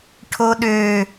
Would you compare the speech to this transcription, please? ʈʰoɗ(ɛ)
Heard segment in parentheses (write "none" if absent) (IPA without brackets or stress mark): ø